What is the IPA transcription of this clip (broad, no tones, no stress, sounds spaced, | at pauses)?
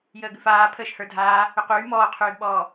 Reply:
j əː ɡ ʉ f aː pʰ əː ʃ h ə˞ dʱ aː | ʏ q yː m ɔː qʰ yː ɡ ɓ ɔː